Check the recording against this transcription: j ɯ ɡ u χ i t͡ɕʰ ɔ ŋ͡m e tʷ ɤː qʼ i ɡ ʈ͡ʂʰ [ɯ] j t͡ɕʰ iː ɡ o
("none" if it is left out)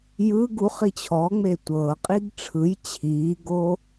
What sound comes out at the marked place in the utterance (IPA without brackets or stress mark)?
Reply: ɯ